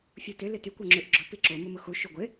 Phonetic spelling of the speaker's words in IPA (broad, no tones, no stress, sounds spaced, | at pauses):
fʲ u t ʏ l ɪ t y kʷ ɔ ŋ͡ǁ ʏ ʔ ɡ͡ǁ ʊ p i ǁ o m ʊ m ʊ x u ʃ u ɡʷ ɪ